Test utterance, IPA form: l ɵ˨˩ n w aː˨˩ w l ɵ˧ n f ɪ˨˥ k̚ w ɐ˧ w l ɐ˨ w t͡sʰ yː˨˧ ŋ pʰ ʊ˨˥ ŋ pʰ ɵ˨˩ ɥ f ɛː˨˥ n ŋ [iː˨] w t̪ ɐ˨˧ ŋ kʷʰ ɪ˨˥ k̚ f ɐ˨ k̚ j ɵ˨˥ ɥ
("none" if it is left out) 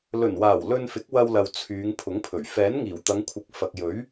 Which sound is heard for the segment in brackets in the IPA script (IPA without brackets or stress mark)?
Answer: iː˨˩